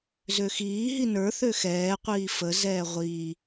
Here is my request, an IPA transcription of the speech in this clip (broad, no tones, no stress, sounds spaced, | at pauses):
z ø x iː ɦ i n ə˞ θ ø x ɛː qʷ iː f ə z ɛː ʁʷ i